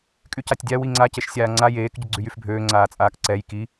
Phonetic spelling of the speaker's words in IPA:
kʼycatʲdʲa wiŋ͡ǀa ceʃsʲaːŋ͡ǀa jeːk ɟʊɡ͡ǀyjyfbʱøː ŋ͡ǀaːt͡sʼaːkǀɛj ki

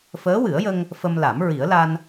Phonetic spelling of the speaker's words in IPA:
fəː˧˥wɨ˨˩˦ə̯jə˧ŋ | fə˧mla˨˩˦m ɹi˨˩˦ə̯la˧n

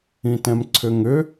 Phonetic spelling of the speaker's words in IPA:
ĩtɛ̃mǀʰʏŋʏ

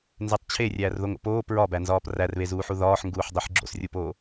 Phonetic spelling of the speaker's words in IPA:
nzetˤt͡ɕʰe rʲæːrðoŋo̰poː pɹɒbænzɒːp rærβezuːħu ðɒːħŋɡuːħdˤiħ ɡ͡ǁo̰srʲupoː

